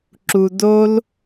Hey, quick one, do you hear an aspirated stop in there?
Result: no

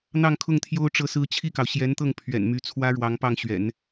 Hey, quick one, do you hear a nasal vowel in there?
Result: no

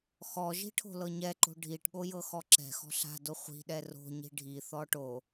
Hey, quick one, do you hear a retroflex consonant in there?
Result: yes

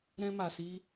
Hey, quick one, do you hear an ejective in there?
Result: no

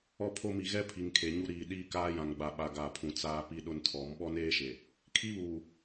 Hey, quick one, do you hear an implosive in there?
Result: yes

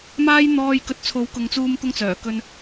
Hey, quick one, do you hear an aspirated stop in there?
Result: yes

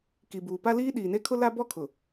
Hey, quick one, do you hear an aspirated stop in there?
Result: yes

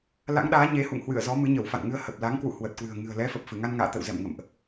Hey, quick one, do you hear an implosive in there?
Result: yes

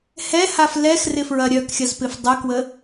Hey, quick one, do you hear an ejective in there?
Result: no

